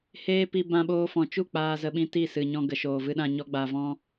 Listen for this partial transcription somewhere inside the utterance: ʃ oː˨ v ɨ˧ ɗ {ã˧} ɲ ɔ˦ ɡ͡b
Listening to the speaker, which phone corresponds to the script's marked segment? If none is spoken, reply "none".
ã˧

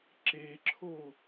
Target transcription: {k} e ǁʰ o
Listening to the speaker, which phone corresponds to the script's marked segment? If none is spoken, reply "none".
ǁ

